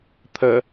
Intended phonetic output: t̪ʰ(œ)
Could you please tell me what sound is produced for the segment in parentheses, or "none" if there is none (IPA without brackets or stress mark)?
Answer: ə